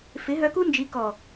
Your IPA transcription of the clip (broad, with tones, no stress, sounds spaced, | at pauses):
f ɪ˨˦ ɦ œ˧ k u˦ n d͡ʒ i˨˦ k ɔ˨